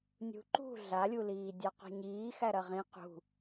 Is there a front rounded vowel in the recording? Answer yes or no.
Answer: no